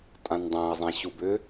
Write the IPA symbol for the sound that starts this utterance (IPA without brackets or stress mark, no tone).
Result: tʼ